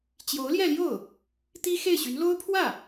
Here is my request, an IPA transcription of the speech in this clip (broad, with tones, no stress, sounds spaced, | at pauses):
t͡ɕ j o˧˥ ʊ̯ l j ɛ˥˧ l j o˥˩ ʊ̯ | t̪ i˥ x e˥˩ ɪ̯ ɕ y˧˥ n l o˥ ʊ̯ pʰ w ä˥˩